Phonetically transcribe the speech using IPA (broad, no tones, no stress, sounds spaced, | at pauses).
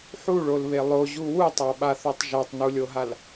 ħ u ɭ o l β e lˠ o ʑ u w u tˤ a ɓ a θ o tˤ ʒ a tˤ n u lʲ o ɦ a l